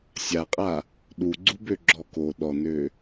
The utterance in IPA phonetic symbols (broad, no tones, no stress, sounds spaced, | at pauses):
sʲ a qʼ a | ɗ u ɡ͡ǀ u b ø ɡ͡ǁ ɔ k o ɗ ɔ n ø